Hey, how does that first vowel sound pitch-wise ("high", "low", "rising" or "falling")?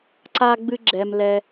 high